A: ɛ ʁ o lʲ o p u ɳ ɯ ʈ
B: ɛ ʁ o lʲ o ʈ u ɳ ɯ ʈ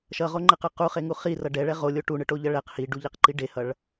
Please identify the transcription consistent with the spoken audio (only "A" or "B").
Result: B